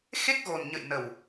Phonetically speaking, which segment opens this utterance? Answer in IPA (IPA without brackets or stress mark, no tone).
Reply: x